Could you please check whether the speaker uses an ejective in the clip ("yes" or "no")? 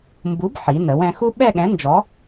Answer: no